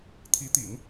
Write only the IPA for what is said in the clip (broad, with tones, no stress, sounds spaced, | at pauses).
t̪ʰ i˧˥ t̪ ḭ˨˩˦ ŋ